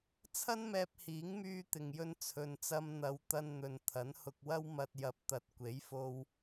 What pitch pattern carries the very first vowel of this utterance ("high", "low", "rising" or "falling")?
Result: high